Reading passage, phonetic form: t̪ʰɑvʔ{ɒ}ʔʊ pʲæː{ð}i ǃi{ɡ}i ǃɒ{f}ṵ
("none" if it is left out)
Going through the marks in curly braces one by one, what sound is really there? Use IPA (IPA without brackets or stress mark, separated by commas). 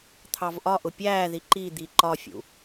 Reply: ɒ, ð, d̪, fʲ